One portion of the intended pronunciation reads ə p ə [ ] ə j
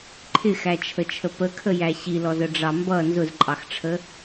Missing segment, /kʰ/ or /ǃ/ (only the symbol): kʰ